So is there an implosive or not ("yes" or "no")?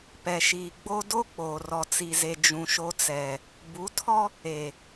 no